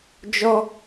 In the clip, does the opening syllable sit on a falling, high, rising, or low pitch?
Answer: high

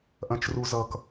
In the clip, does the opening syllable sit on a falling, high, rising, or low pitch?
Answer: low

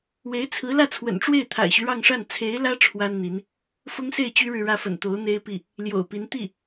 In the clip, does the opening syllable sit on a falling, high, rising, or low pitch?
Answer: rising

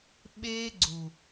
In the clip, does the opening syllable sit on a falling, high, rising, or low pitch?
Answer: high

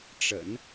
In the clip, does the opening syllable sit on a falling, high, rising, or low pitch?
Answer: low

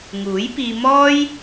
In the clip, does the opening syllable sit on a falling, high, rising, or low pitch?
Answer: rising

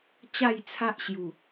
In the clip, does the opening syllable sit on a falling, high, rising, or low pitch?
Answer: falling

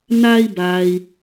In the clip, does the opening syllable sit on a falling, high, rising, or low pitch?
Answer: high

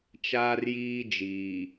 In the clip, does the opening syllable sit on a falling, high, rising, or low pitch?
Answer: high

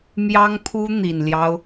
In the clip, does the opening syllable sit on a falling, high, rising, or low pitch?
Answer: high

